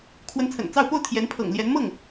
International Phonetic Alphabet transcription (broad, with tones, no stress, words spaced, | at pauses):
kʰwə˧˥nt͡sʰə̰˨˩n t͡sɑ˥˧ʊ̯ po˥˩ʊ̯t̪ʰjɛ˧˥n pʰɤ̰˨˩ŋ ljɛ˧˥nmɤ˥˩ŋ